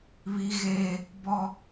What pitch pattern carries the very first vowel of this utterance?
high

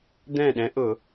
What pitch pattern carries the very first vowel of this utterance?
falling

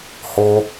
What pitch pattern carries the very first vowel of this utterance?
high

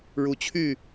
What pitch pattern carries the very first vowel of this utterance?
rising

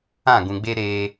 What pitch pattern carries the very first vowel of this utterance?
falling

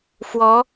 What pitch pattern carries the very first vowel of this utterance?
rising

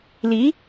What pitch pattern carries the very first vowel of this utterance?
rising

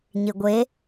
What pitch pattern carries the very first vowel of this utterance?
low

